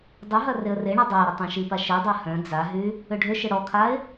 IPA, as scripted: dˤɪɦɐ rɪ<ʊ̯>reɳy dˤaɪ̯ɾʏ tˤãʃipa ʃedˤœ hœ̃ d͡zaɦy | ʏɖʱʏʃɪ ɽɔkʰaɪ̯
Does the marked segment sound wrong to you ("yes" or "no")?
yes